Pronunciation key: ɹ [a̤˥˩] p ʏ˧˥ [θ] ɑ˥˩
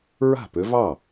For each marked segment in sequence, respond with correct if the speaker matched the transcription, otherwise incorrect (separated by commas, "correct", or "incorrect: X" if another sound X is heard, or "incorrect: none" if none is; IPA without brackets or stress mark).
correct, incorrect: v